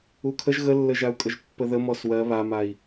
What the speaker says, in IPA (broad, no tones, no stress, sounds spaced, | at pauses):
u kʰ ə ʒ ɣ ə lː ə ʒ a u̯ kʼ ə ʒ pː ə ð ə m ɔ s w ɜ β a m a i̯